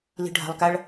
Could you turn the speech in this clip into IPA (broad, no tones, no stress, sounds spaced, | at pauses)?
l i̤ ɖʱ a̤ lˠ k a ɭ